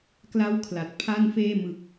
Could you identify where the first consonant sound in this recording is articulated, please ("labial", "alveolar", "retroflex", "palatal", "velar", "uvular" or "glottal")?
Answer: velar